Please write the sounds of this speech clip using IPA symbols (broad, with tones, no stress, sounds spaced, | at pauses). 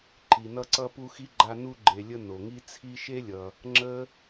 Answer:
ǃ i˩ n ʌ˦ ǀ ʌ˦ p u˦ x i˥ ɡ͡ǃ a˦ n u˥ ɡ͡ǃ e˨ lʲ ə˦ n o˩ ŋ i˦ t͡sʰ i˦ ʃ e˥ lʲ ʌ˨ | ŋ͡ǁ ə˥